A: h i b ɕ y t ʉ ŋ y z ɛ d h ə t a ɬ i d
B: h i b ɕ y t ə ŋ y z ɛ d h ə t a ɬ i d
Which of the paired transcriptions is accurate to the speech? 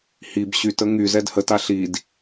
B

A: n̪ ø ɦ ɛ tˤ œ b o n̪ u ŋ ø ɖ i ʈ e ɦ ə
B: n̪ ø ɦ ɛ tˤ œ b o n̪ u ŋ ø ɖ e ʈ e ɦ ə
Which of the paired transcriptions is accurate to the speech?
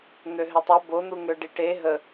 A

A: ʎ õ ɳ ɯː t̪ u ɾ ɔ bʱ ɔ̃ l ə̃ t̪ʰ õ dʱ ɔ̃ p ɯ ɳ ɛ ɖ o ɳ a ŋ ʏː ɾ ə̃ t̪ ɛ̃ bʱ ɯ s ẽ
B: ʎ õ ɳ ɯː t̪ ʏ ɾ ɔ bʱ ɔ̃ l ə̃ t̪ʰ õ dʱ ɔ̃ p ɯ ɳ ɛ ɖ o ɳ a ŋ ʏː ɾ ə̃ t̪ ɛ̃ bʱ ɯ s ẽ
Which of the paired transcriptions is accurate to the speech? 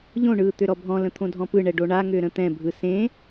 B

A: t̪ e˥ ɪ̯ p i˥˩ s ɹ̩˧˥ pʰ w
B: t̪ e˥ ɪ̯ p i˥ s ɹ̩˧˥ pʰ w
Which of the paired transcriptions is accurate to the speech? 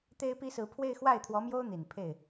B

